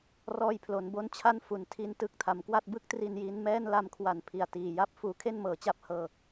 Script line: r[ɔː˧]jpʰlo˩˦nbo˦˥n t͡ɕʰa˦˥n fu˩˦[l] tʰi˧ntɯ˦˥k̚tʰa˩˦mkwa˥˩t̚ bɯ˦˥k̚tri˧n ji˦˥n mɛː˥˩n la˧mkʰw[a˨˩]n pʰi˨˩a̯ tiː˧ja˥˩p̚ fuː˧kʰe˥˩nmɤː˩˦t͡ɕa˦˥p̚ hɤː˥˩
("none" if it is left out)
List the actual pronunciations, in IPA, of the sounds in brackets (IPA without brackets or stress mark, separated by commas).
ɔː˧, n, a˨˩